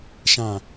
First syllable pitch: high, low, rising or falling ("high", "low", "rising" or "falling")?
low